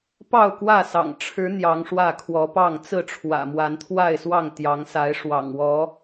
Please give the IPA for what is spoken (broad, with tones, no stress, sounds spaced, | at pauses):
p ɑ˥˨ ʊ̯ k w ä˥˨ s ɑ̰˨˩ ŋ ʈ͡ʂʰ ɻ̩˨˦ n̪ j ɑ˨˦ ŋ ʂ w ä˥˨ kʰ w ɔ˨˦ p ɑ˥˨ ŋ t͡s ɹ̩˥˨ ʈ͡ʂʰ w ä̰˨˩ m w a˨˦ n t̪ʰ w a˥˨ ɪ̯ s w ɑ˥˨ ŋ t̪ j ɑ˨˦ ŋ s a˨˦ ɪ̯ ʂ w ɑ̰˨˩ ŋ w ɔ˨˦